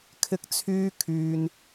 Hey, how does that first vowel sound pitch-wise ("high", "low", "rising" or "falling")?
high